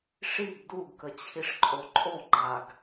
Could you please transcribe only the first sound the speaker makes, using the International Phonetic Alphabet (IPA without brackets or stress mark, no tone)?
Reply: ʂ